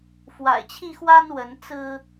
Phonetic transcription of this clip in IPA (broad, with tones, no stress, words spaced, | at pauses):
fwa̰˨˩ɪ̯t͡ɕʰi˥˨xwa˦n wə˨˦nt͡sɹ̩˦